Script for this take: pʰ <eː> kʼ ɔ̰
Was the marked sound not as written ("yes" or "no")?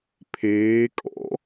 no